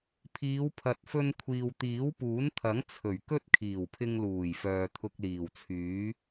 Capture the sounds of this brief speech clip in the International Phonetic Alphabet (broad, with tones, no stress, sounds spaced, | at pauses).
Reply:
pʰ iː˨˧ w pʰ ɐ˨ t̚ f ɵ˧ n kʷʰ iː˨ w t̪ iː˨˥ w p uː˨˥ n t̪ʰ ɐ˨˥ ŋ t͡sʰ ɵ˨˩ ɥ k ɵ˥ t̚ kʰ iː˨˩ w pʰ ɪ˧ ŋ l uː˨˩ j f œː˨ t̪ʰ ʊ˧ k̚ l iː˨˩ w t͡sʰ yː˨˥